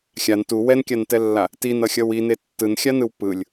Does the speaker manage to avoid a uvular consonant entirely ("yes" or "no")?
yes